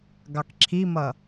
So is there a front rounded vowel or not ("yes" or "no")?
no